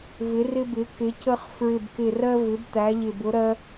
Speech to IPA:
vɪ˩˧rɪ˧bɪ˩˧ kɪ˩˧cə˧χ fɹɪ˨˩bkɪ˨˩rɜ˧ vɪ˩˧bt̪æ˩˧ʎɪ˨˩bʊ˩˧ ɾɜ˧

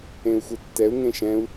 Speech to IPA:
ẽu̯xʷetːɛu̯ ŋẽʃɛ̃u̯

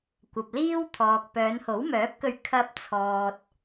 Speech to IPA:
kʷɐ˨p̚liː˥wt̪ʰɔː˨k̚ pœː˨˧nho˨˥wmœː˨˥p̚kɵ˧ɥ kʰɐ˧p̚ t͡sʰɔː˨t̚

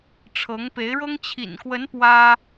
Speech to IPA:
ʈ͡ʂʰɤ˧˥ŋpe˧˥ɪ̯ɻɤ˥ŋ t͡ɕʰḭ˨˩nkwə˧˥n pwä˥

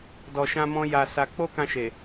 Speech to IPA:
dɔ˧ʃã˦mɔ̃˦ ja˧sa˧ k͡po˦kã˧ʃe˨

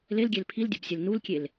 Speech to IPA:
lelɡʲel pʰildʲobsʲel nulkʲel

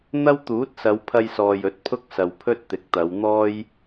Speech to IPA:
n̪ɐ˥wt̪uː˨˥t̚sɐ˨˧w pʰɐ˧jsɔː˨j ɵ˨˥t̚pʰʊ˥k̚sɐ˨w pʰɵ˥t̚t̪ɪ˨˥k̚t̪ɐ˨˧wn̪ɔː˥j

